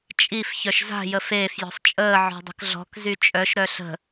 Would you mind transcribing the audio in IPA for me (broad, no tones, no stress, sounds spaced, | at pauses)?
t͡ʃʼ i f ç œ ʃ z a̤ j ə f eː f j ɔ̤ sˤ t͡ʃʼ əː ʕ ɔ̤ dˤ ə̤ k ɮ ɔ̤ k z y t͡ʃʼ œ ʃ ɾ œ ɬ ə̤